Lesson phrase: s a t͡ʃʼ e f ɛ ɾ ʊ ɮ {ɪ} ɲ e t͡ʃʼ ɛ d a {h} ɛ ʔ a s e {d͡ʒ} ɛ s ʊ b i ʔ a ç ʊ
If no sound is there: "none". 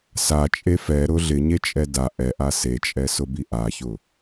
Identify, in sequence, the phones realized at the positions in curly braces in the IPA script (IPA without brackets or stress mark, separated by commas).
ɪ, ʔ, t͡ʃʼ